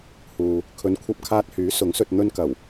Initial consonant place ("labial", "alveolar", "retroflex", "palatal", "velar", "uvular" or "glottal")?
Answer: glottal